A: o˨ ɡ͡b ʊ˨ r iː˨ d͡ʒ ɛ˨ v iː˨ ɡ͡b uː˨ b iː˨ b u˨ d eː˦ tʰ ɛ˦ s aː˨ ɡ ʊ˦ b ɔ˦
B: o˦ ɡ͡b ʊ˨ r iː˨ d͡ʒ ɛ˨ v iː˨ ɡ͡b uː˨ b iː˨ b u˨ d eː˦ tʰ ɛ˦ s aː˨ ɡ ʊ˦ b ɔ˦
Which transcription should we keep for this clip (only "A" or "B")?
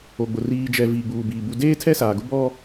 A